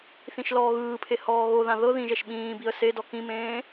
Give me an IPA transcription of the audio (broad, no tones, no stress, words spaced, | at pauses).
θĩʃlɔːɣɯːpʰe hɔːɣoðã ðɤ ðĩʒɛʃ ɓĩːbiə̯ sedɔ kĩmẽː